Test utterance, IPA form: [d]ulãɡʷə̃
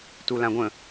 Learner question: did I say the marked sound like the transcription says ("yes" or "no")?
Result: no